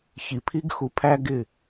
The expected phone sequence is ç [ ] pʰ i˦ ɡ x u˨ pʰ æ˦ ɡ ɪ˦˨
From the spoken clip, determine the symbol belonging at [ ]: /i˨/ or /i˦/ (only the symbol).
i˨